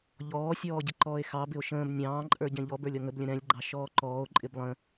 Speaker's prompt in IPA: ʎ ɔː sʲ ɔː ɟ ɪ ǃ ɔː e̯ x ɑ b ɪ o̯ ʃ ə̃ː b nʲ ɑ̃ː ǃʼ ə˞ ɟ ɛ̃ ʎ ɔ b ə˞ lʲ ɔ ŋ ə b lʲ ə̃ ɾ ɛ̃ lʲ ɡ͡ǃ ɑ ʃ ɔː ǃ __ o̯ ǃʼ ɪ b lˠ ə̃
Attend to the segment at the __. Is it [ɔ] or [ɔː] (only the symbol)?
ɔː